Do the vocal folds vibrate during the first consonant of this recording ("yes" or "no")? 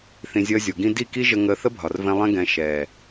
no